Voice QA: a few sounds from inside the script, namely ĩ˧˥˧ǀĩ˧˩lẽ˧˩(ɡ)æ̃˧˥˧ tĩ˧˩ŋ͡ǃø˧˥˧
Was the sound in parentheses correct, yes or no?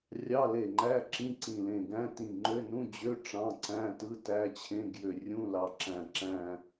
yes